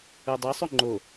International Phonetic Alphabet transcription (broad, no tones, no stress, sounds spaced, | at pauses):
u dˤ ɤ sˤ u ŋ͡ǃ o